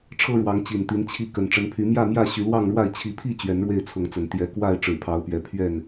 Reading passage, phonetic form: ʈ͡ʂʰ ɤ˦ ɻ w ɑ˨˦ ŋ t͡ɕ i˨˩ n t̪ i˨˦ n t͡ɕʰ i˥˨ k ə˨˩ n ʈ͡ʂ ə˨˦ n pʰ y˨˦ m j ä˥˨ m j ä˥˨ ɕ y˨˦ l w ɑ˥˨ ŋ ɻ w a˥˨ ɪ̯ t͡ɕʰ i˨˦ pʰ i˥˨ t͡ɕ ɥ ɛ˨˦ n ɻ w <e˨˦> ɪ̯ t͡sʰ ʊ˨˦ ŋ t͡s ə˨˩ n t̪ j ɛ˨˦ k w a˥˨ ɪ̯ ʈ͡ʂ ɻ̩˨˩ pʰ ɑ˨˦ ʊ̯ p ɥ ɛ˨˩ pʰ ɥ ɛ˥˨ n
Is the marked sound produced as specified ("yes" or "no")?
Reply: no